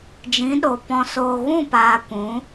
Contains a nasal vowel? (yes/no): yes